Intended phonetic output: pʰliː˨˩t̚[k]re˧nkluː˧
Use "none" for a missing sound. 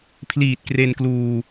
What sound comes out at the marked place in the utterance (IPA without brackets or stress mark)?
k